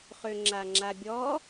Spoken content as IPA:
χ ø ŋ͡ǁ a ŋ͡ǁ a bʲ ɔ

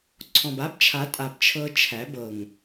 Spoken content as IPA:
ǀʰ ɔ̃˨ b a˦ b t͡ʃʰ a˨˦ tʼ a˨ b t͡ʃʰ ɤ˧ t͡ʃʰ æ˨˦ b ɤ˨ ŋ

